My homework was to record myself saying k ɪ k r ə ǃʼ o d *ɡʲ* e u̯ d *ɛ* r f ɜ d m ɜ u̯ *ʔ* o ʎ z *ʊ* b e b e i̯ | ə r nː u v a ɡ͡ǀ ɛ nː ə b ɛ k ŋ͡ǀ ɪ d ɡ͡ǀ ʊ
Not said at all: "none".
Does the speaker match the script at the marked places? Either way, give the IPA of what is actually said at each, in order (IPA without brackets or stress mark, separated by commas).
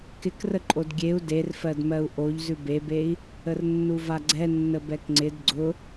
ɡʲ, e, ʔ, ʉ